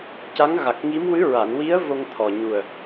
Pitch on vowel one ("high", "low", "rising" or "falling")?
rising